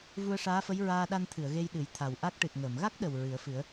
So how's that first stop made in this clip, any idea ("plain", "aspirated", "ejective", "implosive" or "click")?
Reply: implosive